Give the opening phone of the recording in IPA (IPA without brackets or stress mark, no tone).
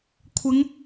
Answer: kʷʰ